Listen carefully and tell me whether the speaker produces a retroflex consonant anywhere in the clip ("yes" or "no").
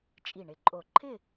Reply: yes